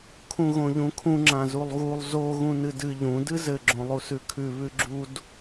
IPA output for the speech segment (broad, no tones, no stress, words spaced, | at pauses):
kʰũɣõʎũkʰũ ŋ͡ǁãzulˠɣulˠ zo ɣũnɨdɨ ʎũ dɨzɘ ɡ͡ǁõlˠusʉkʰʉ βʉɡ͡ǁud